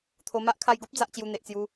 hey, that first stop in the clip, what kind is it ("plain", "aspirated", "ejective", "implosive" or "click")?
aspirated